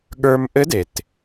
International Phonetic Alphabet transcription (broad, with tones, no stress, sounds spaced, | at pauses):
ɠ ə˞˧ m ʔ ɘ˧˥ d e˩ t